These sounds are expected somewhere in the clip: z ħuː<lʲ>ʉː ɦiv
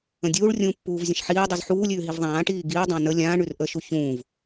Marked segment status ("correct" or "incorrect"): correct